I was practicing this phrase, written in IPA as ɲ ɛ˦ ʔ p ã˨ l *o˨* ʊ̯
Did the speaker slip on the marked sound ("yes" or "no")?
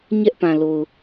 no